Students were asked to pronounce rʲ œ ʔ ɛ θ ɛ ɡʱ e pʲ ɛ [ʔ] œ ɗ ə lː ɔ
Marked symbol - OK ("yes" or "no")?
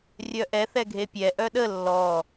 yes